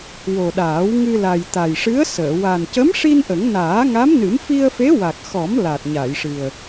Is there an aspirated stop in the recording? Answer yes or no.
no